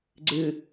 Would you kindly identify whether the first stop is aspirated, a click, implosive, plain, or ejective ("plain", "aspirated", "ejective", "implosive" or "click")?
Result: click